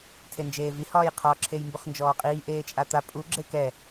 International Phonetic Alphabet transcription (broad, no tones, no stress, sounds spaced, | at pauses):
tʰ e n d͡ʒ eː v i h ɒː j qʰ ɒ ǁʰ e j m b u χ n d͡ʒ ɔː qʼ iː ʔ eː t͡ʃʼ a t̪ a pʼ u ɡ͡ǁ e k ɛ